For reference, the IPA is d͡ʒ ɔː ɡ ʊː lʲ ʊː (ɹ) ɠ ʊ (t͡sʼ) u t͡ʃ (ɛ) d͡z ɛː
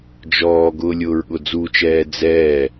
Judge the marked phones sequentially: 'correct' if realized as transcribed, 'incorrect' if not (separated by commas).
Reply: correct, incorrect, incorrect